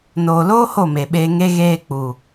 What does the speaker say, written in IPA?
n oː˨ l oː˦ h o˦˨ m e˨ ɓ eː˧ ŋ e˦ ɣ eː˧ k͡p u˨

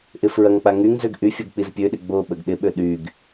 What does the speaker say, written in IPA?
ʔ ɪ f ɹ ɐ ŋ k͡p a ŋ y ŋ z ø ɡ ʔ y fʲ o ɡ k͡p i z pʲ ø ɗ ɪ ɡ͡b o ɓ ə ɡ ɗ ɪ ɓ ø ɗ y ɡ

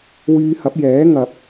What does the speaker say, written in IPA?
w yː˧ h ɐ˨˥ p̚ j ɛː˨˥ ŋ ɐ˨ p̚

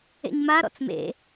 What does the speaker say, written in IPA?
ḛ ɲ m a ɾ ɔ̰ t͡s m ḛ

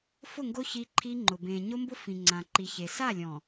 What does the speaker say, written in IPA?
f ʊ˦˨ ŋ ɡ o˦ ç i˦ ǃʰ i˦ ŋ͡ǃ ʊ˨ b ẽ˨ ɲ o˦ m b ʊ˦ f ĩ˨ ŋ͡ǀ ã˨ ǃ i˨ ç e˨ s a˦˨ lʲ ɔ̃˨

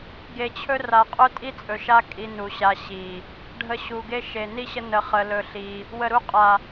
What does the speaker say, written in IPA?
ɡ e˨ t͡ɕʰ ɵ˦ r a˨ qʼ ɵ˦ tʼ i˦ t͡sʼ ɵ˨ ʃ a˦ kʼ i˧ n u˨ ɕ a˧ ɕ i˨ | ɖʱ ə˧ ɕ u˨ ɡ e˦ ʃ e˨ n i˦ ɕ ə˦ n ə˧ χ ə˧ l ɵ˧ ɬ i˧ | w ə˨ ɾ u˦ qʼ a˨

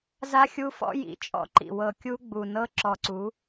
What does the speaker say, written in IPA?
z a˦ xʲ u˦ f ɔ̰˦ j ḭ˨ t͡ʃʼ ɔ̰˦ ǃ ḭ˨ w ɤ˨ kʲ u˦ ɡ͡b u˨ n ɤ˦ ǁ ɔ˨ ǀ u˨˦

